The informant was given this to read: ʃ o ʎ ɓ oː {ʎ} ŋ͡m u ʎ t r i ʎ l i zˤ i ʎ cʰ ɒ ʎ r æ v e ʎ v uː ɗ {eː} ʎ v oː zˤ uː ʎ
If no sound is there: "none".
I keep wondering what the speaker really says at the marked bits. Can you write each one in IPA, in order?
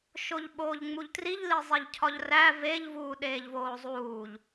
ʎ, eː

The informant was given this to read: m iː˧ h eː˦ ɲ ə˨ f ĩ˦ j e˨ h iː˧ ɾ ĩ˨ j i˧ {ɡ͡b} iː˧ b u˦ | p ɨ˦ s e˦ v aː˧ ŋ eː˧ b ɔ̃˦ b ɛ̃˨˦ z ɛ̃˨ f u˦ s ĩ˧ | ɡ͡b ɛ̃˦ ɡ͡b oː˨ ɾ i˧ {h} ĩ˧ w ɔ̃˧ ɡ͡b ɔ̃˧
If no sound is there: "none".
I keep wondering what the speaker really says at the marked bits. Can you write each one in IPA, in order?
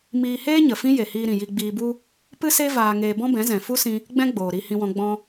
ɡ͡b, h

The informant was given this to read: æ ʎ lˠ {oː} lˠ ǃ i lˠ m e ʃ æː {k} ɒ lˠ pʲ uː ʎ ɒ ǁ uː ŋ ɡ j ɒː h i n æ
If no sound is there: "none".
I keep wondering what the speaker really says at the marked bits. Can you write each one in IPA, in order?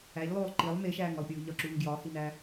oː, ŋ

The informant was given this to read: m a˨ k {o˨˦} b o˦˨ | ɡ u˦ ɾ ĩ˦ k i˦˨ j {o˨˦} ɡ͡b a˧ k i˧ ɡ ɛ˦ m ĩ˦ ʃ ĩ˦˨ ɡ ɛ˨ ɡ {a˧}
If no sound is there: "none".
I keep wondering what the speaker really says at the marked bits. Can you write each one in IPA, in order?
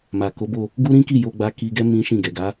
o˨˦, o˧, a˨˦

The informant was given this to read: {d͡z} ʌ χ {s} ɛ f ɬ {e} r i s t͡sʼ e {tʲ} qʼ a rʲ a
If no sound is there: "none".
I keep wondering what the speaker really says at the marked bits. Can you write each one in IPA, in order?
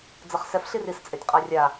d͡z, s, i, tʲ

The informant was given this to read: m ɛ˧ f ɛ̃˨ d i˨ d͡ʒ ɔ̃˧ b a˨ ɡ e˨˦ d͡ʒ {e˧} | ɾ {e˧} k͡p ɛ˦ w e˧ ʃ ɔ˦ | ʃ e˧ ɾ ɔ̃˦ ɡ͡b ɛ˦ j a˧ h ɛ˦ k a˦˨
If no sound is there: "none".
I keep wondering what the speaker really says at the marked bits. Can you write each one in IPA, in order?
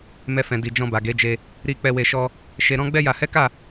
e˧, i˧

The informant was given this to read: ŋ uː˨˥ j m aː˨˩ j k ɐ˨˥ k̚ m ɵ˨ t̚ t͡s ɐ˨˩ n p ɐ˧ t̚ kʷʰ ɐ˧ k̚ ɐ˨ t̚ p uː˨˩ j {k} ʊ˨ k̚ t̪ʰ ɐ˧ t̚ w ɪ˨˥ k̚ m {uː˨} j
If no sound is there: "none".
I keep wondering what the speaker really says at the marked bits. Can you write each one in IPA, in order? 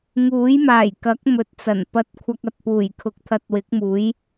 kʰ, uː˨˥

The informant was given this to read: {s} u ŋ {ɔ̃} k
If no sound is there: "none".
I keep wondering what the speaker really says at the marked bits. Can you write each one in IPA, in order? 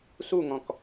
s, ɔ̃

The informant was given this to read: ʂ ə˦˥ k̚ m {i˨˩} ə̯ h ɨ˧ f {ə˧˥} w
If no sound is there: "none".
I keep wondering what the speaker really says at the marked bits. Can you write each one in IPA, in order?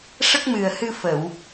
ɨ˨˩, ə˨˩˨

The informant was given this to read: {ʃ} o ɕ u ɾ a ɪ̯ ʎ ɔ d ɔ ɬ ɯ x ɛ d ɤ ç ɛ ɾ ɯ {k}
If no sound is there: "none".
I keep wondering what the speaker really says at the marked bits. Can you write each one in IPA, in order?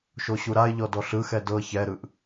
ʃ, ʔ

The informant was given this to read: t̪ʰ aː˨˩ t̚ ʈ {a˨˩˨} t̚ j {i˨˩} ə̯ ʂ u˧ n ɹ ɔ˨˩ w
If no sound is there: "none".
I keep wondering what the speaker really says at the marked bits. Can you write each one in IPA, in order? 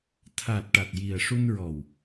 a˨˩, i˨˩

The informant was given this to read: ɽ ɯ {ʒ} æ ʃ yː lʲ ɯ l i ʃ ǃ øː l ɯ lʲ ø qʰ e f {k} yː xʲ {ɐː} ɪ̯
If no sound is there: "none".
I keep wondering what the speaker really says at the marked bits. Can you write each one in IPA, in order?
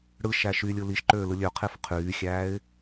ʃ, qʰ, æː

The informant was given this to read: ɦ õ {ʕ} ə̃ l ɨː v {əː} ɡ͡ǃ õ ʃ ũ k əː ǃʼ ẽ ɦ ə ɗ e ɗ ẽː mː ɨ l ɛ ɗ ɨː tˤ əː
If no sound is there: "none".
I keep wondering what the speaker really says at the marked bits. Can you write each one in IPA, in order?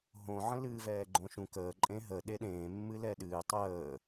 ʕ, ɛː

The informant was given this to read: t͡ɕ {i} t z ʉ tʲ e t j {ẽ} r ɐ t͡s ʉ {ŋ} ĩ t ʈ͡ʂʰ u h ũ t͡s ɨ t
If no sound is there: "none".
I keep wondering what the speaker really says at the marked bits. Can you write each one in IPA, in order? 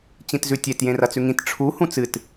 ĩ, ẽ, ŋ

